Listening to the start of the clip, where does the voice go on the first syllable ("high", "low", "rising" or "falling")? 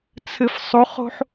low